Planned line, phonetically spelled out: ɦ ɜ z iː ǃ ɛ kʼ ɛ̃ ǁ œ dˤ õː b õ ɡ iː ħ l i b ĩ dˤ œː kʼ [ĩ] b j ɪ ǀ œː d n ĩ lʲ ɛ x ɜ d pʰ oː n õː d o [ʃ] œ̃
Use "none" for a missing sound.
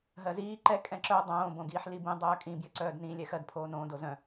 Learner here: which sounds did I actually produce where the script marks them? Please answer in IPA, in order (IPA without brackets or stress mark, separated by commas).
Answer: ĩ, z